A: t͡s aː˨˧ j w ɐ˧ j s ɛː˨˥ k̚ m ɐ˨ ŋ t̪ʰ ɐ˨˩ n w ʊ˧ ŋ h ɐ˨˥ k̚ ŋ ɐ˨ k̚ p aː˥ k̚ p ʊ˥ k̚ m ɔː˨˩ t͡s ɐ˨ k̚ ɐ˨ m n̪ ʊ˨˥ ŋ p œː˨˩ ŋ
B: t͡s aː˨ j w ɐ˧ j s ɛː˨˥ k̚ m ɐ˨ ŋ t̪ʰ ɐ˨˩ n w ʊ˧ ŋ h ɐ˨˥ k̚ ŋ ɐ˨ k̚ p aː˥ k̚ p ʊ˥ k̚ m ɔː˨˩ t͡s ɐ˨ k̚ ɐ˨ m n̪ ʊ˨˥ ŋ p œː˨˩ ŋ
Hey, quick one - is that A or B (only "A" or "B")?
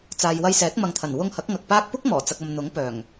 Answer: B